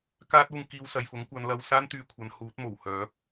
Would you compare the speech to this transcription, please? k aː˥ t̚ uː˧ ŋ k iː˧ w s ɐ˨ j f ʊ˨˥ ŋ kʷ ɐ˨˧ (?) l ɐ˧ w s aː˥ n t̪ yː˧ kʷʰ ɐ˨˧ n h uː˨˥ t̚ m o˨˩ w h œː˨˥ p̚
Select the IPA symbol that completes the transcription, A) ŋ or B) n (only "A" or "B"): B